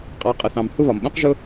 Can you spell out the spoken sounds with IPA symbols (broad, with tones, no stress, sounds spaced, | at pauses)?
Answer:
qʼ ɑ˨˦ qʼ ə˨ θ ɑ̃˨ m h u˦˨ β ɒ˨ m ɓ ũ˦ q ʒ ʊ˦